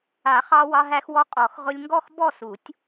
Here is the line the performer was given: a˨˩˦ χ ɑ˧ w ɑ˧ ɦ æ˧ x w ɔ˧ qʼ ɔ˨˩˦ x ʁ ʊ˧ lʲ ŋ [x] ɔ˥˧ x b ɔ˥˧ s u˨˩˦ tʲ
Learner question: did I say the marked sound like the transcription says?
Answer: no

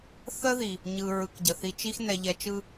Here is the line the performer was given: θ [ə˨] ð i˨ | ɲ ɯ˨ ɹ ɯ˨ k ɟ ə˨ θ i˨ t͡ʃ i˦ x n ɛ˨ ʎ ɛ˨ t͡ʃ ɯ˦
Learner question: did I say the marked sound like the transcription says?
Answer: no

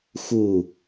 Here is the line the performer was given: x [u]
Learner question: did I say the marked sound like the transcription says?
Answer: yes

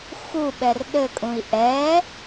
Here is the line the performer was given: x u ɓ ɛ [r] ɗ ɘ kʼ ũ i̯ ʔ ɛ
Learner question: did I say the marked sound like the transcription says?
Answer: yes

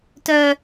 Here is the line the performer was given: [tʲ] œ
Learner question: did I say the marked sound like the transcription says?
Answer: no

